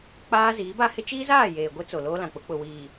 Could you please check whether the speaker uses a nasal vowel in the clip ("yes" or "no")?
yes